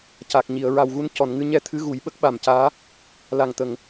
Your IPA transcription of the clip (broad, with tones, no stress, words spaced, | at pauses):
ca˨˩k̚ɲi˨˩˨ə̯ ɹa˨˩wɣu˧˥n cɔ˨˩˨nŋɨ˧ɲɛ˧t̪ʰɨ˧˥ ɣu˨˩˦jɓə˦˥k̚ɓa˨˩mcaː˧˥ | la˨˩ŋt̪ə˨˩˨ŋ